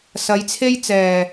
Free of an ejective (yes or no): yes